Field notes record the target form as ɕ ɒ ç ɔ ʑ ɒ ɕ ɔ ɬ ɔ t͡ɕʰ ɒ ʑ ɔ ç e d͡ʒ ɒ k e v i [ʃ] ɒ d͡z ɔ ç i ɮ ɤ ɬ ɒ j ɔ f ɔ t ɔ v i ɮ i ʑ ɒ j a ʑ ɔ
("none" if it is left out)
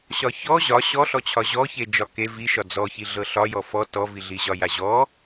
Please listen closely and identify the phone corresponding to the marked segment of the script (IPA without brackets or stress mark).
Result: ʃ